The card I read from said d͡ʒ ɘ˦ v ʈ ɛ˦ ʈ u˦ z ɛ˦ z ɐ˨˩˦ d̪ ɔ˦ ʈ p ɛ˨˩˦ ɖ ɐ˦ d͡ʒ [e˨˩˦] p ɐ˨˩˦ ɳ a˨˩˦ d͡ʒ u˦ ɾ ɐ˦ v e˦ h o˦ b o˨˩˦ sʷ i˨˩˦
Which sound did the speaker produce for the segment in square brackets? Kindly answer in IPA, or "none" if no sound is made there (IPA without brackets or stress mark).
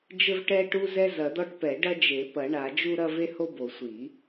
e˨˩˦